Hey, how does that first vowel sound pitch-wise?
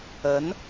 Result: rising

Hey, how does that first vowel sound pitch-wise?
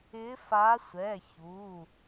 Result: rising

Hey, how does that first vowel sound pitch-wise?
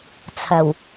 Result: low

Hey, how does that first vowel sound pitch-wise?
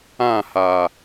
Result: falling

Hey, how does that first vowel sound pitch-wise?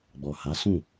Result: low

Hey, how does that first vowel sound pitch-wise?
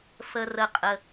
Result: low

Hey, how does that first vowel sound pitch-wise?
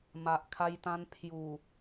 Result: low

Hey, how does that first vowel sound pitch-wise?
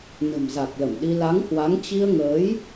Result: low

